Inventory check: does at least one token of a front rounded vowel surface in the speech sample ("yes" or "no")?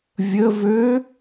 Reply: yes